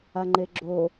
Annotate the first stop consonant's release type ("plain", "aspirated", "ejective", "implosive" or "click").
click